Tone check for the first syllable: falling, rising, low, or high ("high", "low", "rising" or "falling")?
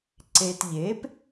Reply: low